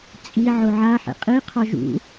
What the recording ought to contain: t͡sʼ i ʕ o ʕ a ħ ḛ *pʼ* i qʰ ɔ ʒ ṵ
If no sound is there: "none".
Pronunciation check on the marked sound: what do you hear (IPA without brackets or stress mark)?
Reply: qʼ